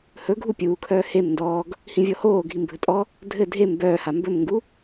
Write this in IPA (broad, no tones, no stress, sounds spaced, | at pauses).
h ɵ ɡʱ u pʲ uː kʰ œː h e m n d ɔː ɡ | h ĩ vʲ ɔ h oː ɡʱ i m bʱ ɵ tʼ ɔ | dʱ ɘ dʱ e m b œː h a m b ɵ m ŋ ɡ u